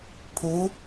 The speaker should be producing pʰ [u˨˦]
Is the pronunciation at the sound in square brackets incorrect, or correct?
correct